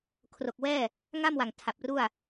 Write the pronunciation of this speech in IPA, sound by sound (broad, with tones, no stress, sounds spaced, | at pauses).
kʰ r o˨˩ k̚ w ɛː˥˩ | ŋ a˥˩ m w a˨˩ ŋ tʰ a˨˩ p̚ r u˥˩ a̯